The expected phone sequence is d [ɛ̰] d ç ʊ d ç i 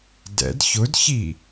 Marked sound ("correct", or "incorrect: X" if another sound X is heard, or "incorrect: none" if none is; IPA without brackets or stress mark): correct